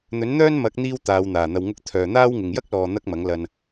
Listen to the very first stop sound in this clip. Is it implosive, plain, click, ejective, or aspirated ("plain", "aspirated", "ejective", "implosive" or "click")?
plain